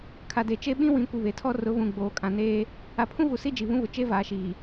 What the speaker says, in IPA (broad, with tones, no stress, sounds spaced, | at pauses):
kʰ a˨ d e˨ t͡ʃ e˦ ɓ ĩ˦ w ĩ˨˦ kʷ i˨ β e˨ tʰ ɔ˦ r ʊ˨˦ β ũ˨ ɡ͡b oː˨ kʼ ã˨ n eː˦ | a˨ pʰ ũ˦ v u˨ s i˦ d͡ʒ i˨ β ũ˦ β ʊ˨ t͡ʃ e˦ v aː˨ ʃ iː˨